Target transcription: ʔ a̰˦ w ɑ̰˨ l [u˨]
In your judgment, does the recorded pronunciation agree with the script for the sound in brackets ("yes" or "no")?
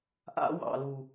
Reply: yes